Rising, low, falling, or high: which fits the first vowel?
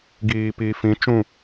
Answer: low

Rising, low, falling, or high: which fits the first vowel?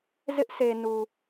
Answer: high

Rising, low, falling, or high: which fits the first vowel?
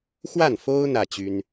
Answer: falling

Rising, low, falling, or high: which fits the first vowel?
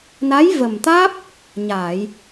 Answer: rising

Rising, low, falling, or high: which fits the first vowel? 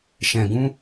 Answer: low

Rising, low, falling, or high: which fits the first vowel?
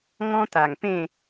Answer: high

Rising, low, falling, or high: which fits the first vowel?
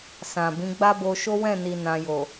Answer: low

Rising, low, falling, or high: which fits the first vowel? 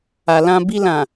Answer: low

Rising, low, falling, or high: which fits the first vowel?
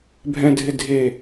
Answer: low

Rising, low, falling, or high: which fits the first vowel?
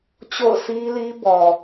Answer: falling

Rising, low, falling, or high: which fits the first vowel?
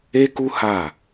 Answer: high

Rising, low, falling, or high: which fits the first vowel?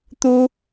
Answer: high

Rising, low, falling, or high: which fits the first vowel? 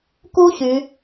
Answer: high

